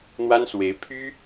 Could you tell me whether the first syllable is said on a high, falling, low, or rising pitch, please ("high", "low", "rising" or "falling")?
high